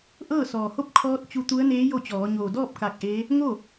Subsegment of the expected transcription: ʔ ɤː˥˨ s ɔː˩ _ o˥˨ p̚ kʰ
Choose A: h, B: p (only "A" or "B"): A